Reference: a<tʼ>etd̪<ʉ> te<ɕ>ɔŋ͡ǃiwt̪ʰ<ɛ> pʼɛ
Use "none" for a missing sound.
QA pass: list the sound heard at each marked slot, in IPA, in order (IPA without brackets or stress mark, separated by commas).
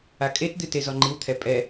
kʼ, ɨ, z, ɛ